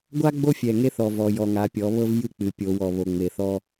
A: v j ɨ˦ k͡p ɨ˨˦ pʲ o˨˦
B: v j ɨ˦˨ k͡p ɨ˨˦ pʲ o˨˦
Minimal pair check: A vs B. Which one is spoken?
B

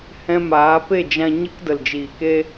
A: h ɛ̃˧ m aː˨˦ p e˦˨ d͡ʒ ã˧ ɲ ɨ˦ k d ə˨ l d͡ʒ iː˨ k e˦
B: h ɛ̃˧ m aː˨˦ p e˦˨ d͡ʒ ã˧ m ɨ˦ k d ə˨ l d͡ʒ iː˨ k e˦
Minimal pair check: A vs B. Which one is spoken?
A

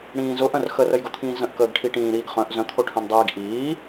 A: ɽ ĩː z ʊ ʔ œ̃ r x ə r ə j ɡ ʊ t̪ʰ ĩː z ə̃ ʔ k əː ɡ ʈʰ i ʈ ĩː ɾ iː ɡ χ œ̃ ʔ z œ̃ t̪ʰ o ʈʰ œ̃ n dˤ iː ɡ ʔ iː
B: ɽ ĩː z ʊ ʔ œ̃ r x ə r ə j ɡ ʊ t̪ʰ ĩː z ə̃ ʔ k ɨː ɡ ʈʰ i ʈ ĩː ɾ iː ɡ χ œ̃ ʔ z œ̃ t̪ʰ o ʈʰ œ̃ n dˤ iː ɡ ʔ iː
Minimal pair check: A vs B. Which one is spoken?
A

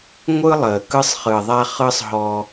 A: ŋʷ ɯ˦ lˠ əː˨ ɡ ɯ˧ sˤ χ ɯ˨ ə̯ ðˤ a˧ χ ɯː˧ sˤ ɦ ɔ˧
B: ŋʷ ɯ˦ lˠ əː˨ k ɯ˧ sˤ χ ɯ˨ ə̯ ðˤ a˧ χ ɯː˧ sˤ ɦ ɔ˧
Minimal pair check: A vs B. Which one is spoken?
B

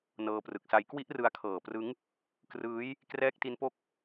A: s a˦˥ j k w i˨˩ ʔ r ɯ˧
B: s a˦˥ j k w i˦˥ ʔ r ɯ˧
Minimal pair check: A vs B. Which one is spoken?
B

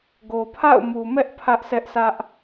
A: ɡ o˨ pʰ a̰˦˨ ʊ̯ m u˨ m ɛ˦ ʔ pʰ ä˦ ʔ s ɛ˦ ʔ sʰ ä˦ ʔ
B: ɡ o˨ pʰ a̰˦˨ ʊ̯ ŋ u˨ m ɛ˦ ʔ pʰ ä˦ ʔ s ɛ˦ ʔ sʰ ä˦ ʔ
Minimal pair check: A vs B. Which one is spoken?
A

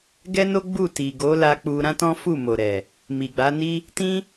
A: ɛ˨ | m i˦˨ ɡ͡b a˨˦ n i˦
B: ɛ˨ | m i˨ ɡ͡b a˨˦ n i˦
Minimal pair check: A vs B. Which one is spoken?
B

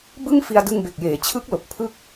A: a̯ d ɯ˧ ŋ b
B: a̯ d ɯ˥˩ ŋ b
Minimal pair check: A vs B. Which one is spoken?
A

